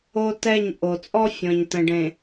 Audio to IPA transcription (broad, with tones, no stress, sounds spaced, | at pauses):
o˦ t ɛ˦˨ ɲ ʔ o˨ t͡sʼ ɔ˦ fʲ ɔ̃˨ ɲ t ə̃˨ ɖ ẽ˨